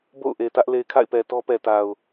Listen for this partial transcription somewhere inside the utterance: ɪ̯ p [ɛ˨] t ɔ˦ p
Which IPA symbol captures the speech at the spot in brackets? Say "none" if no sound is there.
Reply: ɛ˨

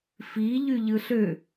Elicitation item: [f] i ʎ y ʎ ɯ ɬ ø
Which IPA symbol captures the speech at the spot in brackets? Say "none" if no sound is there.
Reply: f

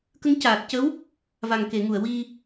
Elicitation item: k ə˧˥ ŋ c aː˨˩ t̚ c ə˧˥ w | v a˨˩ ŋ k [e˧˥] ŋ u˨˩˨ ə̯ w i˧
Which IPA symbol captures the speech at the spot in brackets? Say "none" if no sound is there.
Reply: e˨˩˨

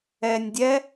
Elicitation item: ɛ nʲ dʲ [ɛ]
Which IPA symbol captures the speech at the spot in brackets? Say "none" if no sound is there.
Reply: ɛ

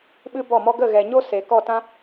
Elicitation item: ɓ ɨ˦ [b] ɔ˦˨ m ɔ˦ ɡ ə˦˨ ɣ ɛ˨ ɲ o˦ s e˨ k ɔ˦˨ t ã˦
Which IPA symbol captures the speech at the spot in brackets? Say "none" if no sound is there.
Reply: b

